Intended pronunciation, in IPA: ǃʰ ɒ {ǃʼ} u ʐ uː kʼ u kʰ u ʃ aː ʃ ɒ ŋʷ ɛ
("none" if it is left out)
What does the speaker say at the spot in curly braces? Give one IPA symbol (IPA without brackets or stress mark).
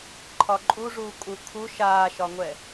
ǃʼ